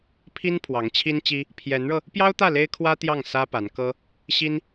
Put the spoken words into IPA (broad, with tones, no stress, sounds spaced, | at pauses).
pʰ i˥ n pʰ w ɑ˧˥ ŋ t͡ɕʰ i˥ n t͡ɕ i˥ | pʰ j ɛ˧˥ n ɻ ɤ˧ | p j ɑ˥ ʊ̯ t̪ ä˥˩ l e˥ ɪ̯ kʰ w ä˥ t̪ j ɑ˥˩ ŋ s ä˥ p a˧˥ n k ɤ˥ | ɕ i˥ n